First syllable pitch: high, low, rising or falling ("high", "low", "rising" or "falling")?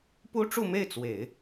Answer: high